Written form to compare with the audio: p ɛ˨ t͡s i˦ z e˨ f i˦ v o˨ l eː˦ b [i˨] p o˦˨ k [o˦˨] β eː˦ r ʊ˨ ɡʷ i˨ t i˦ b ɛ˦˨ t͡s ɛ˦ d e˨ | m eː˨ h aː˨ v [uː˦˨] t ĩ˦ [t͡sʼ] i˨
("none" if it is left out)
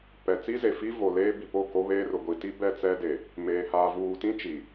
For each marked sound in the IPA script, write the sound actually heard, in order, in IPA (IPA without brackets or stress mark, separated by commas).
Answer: i˨, o˦, uː˨, t͡ʃ